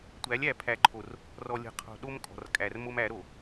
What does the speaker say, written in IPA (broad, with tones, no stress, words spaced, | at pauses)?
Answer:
tʷæ˨˦lʲæ˨ pʰæ˨ǃʰo˨r | rɔ˨lʲə̤˨qʰo̤˨ ɗo˦m kʼɔ̤˨rkʼæ˨r mo˦mæ˨˦ɾo˨